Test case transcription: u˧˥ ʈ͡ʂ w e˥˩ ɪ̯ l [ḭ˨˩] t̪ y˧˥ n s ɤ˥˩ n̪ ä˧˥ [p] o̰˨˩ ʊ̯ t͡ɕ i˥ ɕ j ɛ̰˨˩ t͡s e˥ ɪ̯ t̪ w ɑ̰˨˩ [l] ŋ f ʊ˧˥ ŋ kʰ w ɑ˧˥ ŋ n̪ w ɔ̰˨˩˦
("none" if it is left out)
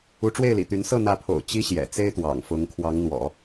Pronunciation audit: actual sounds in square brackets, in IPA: ḭ˨˩, pʰ, none

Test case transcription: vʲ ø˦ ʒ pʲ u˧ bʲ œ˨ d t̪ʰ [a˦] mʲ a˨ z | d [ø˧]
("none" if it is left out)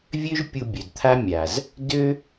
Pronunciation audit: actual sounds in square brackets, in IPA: a˦, ø˦

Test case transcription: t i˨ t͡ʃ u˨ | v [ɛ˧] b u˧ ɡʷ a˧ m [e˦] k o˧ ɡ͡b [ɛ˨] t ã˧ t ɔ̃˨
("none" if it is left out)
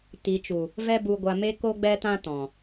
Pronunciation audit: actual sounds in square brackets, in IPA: ɛ˦, e˦, ɛ˧

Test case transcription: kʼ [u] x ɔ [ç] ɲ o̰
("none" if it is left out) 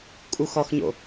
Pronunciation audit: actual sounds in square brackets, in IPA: u, x

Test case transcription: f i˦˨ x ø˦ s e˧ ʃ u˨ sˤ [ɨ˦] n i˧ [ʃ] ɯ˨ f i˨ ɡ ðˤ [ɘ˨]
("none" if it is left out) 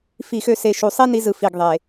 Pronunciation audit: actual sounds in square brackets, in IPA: i˦, z, e˨

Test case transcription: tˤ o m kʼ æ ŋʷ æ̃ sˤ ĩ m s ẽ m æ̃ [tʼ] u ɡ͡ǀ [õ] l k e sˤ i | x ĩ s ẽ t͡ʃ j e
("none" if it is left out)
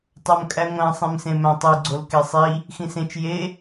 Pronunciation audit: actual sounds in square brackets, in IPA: tˤ, o

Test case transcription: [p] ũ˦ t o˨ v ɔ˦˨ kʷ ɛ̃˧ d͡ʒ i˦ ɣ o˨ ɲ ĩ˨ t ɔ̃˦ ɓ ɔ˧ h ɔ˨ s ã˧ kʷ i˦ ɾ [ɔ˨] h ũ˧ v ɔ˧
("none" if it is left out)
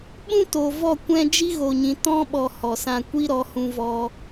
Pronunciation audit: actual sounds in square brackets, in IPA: ɓ, ɔ˨˦

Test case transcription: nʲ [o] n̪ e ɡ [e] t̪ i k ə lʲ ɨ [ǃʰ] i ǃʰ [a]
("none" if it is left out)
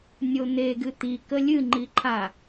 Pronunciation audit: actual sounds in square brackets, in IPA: o, ɨ, ŋ͡ǃ, a

